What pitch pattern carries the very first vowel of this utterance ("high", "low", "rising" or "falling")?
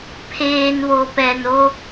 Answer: low